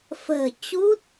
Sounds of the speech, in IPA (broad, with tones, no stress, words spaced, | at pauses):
fə̤ː˨˩ t͡ɕu˦˥t̚